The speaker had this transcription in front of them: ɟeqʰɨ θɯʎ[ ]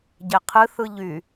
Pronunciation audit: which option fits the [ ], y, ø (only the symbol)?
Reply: y